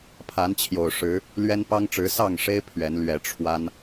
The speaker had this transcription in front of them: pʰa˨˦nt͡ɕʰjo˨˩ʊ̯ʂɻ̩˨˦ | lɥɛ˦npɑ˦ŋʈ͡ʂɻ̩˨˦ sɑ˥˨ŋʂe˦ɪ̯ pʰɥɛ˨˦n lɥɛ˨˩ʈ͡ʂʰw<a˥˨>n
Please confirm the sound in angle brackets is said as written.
no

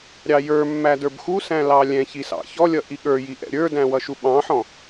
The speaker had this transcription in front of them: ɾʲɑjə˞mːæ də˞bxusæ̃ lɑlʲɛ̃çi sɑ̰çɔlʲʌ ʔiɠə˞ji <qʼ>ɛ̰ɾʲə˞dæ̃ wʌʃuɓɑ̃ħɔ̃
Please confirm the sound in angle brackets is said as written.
no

